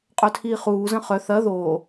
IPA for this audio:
qʼ œ tʰ iː χ uː z ə̃ χ œ θ ɐ ð oː

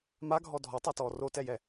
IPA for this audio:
m a ɡʱ ɔ dʱ ɔ tˤ a t ɔː r o t ɛ j ɛ

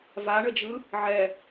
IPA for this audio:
v a ɳ ə d͡ʒ ɯ | ʕ ɛ

